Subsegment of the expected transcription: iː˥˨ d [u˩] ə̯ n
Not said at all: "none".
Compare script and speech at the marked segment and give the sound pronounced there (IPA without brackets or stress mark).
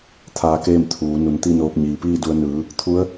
u˧